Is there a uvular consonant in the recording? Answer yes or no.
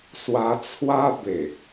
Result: no